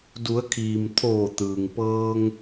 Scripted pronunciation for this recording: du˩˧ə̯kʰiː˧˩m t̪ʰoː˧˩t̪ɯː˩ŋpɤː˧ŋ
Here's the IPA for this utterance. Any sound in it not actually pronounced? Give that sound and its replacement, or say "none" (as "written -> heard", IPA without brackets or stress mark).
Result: iː˧˩ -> iː˩